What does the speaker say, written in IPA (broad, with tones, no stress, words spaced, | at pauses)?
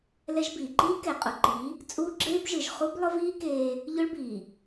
lɛ˦ʒbiː˨ ǃiː˦kɛ˨qʼʊ˨ǃi˨˦ | t͡sʼuː˦ɡ͡ǁeː˦bʒɯ˨ʒ χu˦blˠʊ˦viː˦ keː˦ | ʎʊ˦ɭbiː˨